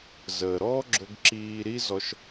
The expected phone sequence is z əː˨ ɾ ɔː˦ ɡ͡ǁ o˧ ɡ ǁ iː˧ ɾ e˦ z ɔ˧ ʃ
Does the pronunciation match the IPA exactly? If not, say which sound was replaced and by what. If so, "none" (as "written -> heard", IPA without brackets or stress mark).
e˦ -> i˦